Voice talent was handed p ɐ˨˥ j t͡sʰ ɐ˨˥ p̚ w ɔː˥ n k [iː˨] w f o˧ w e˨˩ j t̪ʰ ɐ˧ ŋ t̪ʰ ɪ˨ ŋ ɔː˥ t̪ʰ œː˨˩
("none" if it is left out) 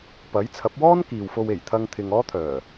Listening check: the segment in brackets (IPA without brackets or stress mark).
iː˨